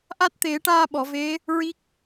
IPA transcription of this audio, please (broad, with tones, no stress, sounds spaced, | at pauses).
ʔ a˦˥ t̚ t̪ e˨˩˦ ʈ aː˧ ɓ ɔ˨˩˨ v e˧˥ | ɹ i˦˥ k̚